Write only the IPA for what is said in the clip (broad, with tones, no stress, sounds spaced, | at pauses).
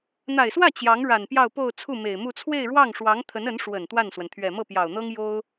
n̪ a˨˩ ɪ̯ s w ä˥˩ t͡ɕ j ɑ˧˥ ŋ ɻ a˨˩ n p j ɑ˥˧ ʊ̯ p o˥˧ ʊ̯ t͡sʰ u˥˩ m e˨˩ ɪ̯ m u˥˧ t͡sʰ w e˥˧ ɪ̯ ɻ w ɑ˥˩ ŋ ʂ w ɑ˧˥ ŋ t̪ʰ ə˧˥ n ə˧˥ n ʂ w ə˨˩ n t̪ w a˥˩ n s w ə˩ n t̪ʰ ɥ ɛ˨˩ m ɤ˥˩ p j ɑ˨˩ ʊ̯ n̪ ɤ˥ ŋ j o˥ ʊ̯